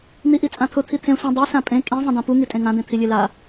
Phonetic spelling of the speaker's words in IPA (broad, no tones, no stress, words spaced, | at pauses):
n̪iʔit͡sʼãt̪ʰʊ t̪ʰit̪ʰẽ sʷĩ dˤe sãpʼẽ kʼĩ zˤĩdãpu ŋitʼẽŋã d̪ẽt̪ʰilʲela